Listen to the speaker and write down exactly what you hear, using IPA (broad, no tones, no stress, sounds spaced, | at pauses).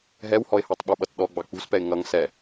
ɦ ɛ w h ɔ ɪ̯ h ɑ tˤ ɓ u ɓ ʌ t ɗ ɔ ɡ͡b ɑ k͡p ṳ s p ɛ ɪ̯ ŋ ʌ ŋ s ɛ